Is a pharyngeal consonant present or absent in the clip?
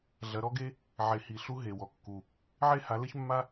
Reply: present